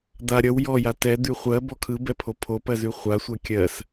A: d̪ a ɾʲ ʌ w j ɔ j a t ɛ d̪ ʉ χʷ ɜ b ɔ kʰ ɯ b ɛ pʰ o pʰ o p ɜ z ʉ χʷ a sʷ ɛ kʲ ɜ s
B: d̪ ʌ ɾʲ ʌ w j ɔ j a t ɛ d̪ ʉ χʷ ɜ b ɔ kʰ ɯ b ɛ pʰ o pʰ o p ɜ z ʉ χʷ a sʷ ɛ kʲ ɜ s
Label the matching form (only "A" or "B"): A